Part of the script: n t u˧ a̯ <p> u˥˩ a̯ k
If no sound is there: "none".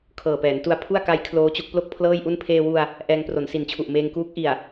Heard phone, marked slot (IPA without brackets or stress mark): pʰ